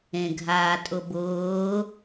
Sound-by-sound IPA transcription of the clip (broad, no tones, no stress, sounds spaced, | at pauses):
ẽ ɡʱ aː tʼ ʊ b ʊː